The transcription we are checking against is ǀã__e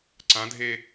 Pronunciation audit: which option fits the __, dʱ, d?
dʱ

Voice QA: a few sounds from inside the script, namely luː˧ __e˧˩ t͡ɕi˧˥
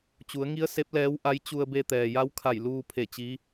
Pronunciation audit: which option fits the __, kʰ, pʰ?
pʰ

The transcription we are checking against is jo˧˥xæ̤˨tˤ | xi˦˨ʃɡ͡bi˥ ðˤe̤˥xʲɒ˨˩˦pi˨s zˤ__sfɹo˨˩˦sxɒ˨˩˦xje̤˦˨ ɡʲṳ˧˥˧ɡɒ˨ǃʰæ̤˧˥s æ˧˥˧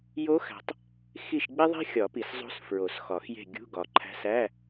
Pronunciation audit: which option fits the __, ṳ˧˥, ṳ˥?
ṳ˧˥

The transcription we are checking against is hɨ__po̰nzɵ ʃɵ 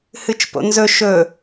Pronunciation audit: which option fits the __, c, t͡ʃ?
t͡ʃ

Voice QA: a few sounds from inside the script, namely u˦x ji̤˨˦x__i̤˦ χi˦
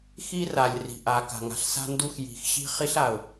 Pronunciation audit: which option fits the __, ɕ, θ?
ɕ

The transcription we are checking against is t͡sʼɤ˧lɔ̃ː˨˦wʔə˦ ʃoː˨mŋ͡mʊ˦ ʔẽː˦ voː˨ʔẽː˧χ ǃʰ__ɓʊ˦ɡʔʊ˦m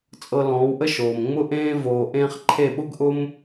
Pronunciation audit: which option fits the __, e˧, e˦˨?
e˦˨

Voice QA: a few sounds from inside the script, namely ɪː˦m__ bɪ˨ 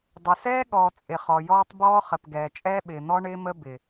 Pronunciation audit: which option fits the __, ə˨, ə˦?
ə˦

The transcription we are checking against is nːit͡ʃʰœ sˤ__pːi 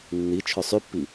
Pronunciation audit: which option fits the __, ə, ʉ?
ʉ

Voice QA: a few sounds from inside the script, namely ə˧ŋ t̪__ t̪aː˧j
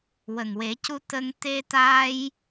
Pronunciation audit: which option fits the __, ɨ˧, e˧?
e˧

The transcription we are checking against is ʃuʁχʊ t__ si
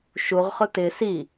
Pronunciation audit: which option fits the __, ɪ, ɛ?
ɪ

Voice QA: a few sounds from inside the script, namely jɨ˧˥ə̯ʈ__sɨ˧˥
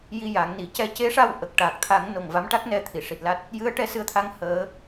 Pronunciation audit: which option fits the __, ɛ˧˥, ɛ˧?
ɛ˧˥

